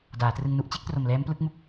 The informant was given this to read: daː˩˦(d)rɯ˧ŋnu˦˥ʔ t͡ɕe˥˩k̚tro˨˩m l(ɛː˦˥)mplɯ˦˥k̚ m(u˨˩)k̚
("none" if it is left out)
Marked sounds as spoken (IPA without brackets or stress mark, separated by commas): t, ɛː˦˥, u˨˩